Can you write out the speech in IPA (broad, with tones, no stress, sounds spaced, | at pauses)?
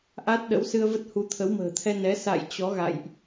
ʔ a˦˥ t̚ ɗ ə̰˧˥ w s ɨ˧ ə̯ v ə˦˥ t̚ h u˨˦ t̪ʰ ə˨˦ w m ə̤ː˨˩ t̪ʰ ɛ˧ n ɛ˨˦ s a̰˧˨ j t͡ɕ ɔ˨˦ ɣ a̰˧˨ j ʔ